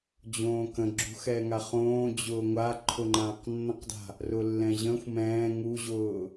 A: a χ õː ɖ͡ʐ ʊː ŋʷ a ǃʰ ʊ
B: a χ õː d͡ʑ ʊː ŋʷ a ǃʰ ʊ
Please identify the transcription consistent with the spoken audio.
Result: B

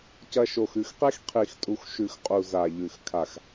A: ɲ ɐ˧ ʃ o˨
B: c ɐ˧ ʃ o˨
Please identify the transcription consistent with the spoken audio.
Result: B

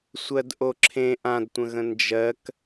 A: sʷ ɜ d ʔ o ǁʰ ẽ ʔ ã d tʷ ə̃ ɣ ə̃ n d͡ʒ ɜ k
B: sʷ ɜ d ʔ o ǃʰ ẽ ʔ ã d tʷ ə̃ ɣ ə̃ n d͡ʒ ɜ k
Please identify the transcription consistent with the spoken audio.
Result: A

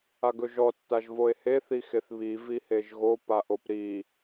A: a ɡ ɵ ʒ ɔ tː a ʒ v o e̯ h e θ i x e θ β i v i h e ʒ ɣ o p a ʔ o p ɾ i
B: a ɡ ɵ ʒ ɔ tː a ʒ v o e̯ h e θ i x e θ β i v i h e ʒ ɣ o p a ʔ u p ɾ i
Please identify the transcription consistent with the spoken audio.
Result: A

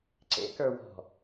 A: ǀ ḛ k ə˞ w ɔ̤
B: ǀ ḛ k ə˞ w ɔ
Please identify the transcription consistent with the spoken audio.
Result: A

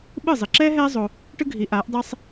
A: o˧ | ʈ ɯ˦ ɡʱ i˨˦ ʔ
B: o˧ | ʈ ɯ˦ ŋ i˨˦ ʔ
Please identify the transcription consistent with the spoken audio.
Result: A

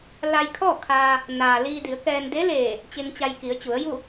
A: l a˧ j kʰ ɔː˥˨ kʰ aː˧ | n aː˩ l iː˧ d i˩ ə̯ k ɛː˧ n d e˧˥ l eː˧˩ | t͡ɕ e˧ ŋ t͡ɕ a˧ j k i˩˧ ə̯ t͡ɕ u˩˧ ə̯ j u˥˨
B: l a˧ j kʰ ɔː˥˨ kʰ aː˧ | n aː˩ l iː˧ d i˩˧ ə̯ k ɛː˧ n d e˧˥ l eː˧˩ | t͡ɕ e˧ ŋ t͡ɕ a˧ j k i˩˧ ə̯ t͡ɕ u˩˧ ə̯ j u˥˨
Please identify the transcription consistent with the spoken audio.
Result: B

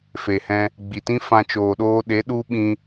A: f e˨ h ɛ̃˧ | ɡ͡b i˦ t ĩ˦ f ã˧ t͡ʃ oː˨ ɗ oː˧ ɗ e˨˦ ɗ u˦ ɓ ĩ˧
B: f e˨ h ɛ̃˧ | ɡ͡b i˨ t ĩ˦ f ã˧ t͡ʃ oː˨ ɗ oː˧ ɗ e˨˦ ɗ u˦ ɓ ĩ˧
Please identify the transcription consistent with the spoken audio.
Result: B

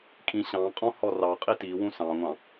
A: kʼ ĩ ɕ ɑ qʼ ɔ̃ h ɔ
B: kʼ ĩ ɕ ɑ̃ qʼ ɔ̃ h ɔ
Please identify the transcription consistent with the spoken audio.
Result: B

